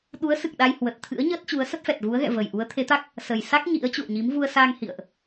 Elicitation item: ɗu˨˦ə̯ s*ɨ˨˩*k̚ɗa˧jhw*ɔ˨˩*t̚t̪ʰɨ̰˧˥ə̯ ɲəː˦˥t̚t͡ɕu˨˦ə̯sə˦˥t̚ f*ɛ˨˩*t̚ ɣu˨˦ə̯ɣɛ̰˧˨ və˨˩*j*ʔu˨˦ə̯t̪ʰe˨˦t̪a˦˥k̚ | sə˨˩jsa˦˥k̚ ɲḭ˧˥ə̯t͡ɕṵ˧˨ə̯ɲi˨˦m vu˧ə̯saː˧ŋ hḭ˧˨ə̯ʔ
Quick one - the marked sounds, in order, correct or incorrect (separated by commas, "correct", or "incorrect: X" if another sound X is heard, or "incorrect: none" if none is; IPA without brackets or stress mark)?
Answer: correct, incorrect: ə˨˩, correct, correct